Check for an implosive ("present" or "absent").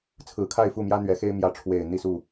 absent